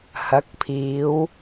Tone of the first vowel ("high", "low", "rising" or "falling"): rising